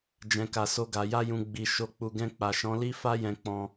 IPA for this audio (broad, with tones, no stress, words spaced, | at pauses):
d͡ʒɛ̃˨ka˨so˧ɡa˨ ja˧jũ˨ ɡ͡bi˨ ʃo˨k͡pu˨ɡɛ̃˧ k͡pa˨ʃɔ̃˨˦li˦ fa˦jɛ̃˧k͡pɔ̃˧